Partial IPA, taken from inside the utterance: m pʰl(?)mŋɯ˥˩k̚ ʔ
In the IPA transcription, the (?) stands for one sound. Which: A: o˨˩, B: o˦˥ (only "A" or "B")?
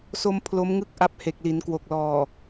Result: B